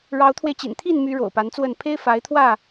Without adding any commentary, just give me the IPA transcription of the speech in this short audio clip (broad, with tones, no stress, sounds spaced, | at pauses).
ɻ ɑ˨˦ ʊ̯ t̪ʰ w e˧ ɪ̯ t͡ɕ ḭ˨˩ n t̪ʰ i˥˨ n m y˨˦ ɻ o̰˨˩ ʊ̯ p a˨˦ n t͡s w ə˥˨ n pʰ e˦ ɪ̯ f a˨˦ ɪ̯ t̪ʰ w ä˥˨